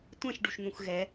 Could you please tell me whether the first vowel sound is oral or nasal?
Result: nasal